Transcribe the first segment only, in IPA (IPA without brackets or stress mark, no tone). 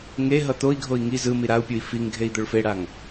ŋ